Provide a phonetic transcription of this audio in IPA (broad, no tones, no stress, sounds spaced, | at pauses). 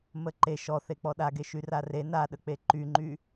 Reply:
m ə ǃ e ʃ ɔ θ e k͡p ɔ ɗ a ɡ e ʃ y r a r e n a ɗ ə k͡p e ǃ y ŋ͡ǃ y